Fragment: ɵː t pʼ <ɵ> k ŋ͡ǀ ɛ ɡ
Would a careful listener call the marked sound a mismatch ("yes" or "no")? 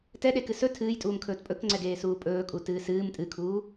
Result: no